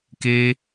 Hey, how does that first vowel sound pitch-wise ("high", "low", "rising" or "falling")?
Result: high